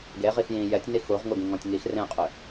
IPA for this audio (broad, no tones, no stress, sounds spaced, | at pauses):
ɡ e ʁ i x j ĩ j ɛ tʲ n i x u ʁ ŋ u ɡ ĩ ŋ ɔ̃ tʲ ŋ i x r ẽ qʼ ʏ